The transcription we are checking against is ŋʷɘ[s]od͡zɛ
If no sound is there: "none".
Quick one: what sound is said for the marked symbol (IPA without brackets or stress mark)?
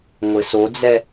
s